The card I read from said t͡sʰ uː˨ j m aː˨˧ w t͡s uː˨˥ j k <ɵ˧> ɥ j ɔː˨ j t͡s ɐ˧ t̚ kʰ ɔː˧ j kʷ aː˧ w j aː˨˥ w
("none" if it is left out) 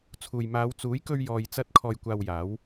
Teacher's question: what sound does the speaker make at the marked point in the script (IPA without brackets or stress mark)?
ɵ˧